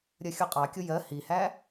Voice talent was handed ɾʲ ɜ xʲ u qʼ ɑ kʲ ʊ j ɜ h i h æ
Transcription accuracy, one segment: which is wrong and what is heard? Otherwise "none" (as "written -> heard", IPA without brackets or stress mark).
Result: none